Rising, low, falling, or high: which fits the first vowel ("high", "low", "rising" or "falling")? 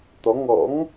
rising